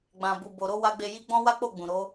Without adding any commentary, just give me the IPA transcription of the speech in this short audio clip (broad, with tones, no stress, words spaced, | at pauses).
ɡ͡bã˨bu˨bo˨ɾo˧ wa˧ɡ͡be˧ji˦ ɡ͡bɔ̃˦ wa˦k͡po˦˨ɡ͡bũ˨ ɾo˨˦